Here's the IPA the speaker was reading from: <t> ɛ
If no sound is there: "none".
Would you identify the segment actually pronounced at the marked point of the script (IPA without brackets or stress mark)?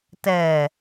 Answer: t